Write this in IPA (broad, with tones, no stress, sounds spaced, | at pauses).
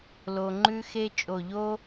l o˧ ŋ͡ǃ ʉ˥ x e˥ t͡ʃʼ o˧˩ ʎ o˥